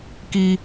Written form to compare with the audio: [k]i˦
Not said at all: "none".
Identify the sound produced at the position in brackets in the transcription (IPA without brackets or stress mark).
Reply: k